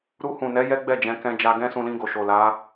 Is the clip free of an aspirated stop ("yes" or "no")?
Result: yes